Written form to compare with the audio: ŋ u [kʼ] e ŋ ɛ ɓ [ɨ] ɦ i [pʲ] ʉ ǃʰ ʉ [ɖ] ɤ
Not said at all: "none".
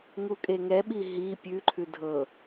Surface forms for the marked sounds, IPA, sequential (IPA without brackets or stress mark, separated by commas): kʼ, i, pʲ, dʱ